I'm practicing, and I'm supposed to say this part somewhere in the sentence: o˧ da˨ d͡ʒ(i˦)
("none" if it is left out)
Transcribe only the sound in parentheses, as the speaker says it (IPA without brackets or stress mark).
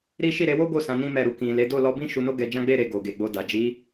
i˨˦